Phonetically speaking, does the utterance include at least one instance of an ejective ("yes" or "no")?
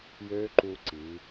no